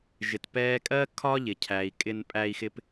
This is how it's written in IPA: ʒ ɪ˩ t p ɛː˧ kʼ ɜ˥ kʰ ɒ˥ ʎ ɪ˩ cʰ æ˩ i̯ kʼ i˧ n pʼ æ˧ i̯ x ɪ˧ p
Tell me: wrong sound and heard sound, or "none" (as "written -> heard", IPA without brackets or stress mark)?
i˧ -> ɪ˧